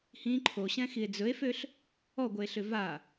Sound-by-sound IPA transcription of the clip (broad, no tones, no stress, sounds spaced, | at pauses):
h ĩ ǃʰ o ɕ ɛ̃ x i e̯ d͡z ɵ e̯ f ø ɬ | ɔ ɡʷ œ e̯ ɬ ʏ v a